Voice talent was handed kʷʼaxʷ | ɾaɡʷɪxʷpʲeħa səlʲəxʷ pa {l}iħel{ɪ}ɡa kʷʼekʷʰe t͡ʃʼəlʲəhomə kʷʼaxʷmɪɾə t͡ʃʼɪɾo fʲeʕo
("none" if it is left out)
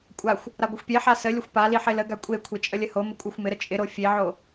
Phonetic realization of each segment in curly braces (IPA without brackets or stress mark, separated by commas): l, ə